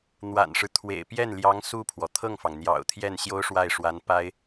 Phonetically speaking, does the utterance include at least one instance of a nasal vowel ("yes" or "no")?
no